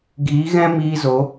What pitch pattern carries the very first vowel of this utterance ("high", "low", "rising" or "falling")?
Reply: rising